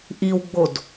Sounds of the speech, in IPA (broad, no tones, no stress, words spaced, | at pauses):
ʔiwɡ͡bod